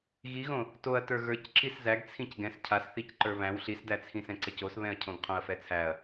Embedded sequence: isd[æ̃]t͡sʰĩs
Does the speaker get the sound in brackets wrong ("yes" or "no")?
yes